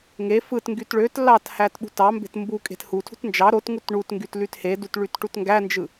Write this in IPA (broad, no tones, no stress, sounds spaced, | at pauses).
ŋ e f ɯ t ŋ ɡ y t ɭ ø t l ɑ t h æ t ɓ ṳ t ɑ m b e̤ t m b u kʼ e̤ t h u tʰ ṳ t n d͡ʒ ɑ ɾ o t ŋ u t ɳ u t ŋ ɡ y t l y t h e d u t ɭ y t ʈ u t ŋ ɡ æ n d͡ʒ ɯ